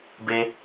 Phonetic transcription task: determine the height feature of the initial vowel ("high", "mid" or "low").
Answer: mid